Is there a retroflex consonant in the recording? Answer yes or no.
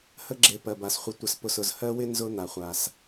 no